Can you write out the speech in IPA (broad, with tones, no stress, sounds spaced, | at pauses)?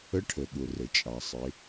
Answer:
ə˧˥ ʈʰ ə˩ ɠ ʊ˩ r ə˩ t͡ʃʼ ɑ˩ sˤ ɪ˩˧